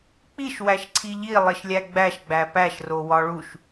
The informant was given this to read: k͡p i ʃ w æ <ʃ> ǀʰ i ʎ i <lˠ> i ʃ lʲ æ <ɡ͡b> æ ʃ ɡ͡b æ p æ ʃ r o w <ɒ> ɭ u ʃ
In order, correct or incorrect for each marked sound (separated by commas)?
correct, correct, correct, correct